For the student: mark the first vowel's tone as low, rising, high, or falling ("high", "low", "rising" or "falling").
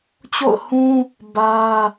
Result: falling